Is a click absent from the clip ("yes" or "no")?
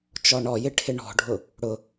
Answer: yes